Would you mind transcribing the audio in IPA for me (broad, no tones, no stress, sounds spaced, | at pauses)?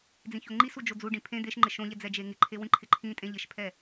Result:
d͡z ĩ ç o ŋ͡ǃ i s u d͡ʒ o d͡z u ɖ ĩ pʰ ẽ d̪ e ʃ ŋ͡ǃ ɪ ʃ õ ʎ ɛ d͡z ɛ d͡ʒ e ŋ ɪ ǃʰ e w ĩ ǃʰ ɪ ǃʰ ĩ tʼ ẽ ʎ ɪ ʃ pʰ ɛ